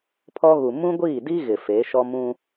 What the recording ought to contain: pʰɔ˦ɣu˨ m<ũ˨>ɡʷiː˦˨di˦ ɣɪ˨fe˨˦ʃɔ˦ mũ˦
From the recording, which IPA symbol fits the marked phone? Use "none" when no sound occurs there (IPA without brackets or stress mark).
ũ˦